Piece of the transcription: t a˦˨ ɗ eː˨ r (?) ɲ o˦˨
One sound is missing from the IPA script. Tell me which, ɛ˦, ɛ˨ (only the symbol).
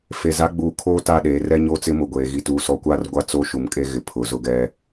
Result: ɛ˦